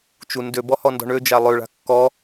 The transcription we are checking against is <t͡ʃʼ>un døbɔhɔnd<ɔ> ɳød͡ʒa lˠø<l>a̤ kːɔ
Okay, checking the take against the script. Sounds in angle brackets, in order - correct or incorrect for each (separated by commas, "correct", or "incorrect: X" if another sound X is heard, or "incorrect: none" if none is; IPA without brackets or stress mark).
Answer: incorrect: t͡ʃ, incorrect: ɔ̤, incorrect: ɭ